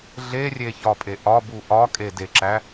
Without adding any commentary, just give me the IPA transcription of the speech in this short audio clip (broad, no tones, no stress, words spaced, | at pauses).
ɮerʲeçɒpʼe ʔɒbu ʔɒkʼedeǁæ